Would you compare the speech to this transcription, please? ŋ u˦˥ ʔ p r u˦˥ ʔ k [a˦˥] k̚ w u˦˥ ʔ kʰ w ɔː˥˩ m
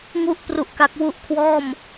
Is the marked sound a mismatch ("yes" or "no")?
no